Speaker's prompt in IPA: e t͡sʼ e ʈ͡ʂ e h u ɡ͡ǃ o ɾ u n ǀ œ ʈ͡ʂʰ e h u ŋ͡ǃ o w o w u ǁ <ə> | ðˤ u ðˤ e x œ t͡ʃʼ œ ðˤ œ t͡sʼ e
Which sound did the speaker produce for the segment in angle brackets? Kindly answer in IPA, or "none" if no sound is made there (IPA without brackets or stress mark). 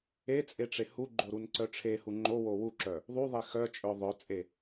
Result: œ